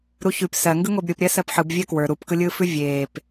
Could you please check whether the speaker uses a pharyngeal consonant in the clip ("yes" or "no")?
yes